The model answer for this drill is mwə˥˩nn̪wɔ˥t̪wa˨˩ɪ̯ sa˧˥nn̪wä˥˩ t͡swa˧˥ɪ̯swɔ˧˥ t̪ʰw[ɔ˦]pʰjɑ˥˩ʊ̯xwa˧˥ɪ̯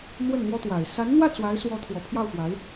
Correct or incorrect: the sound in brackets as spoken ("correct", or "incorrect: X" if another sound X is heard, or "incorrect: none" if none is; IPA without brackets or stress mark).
incorrect: ɔ˨˩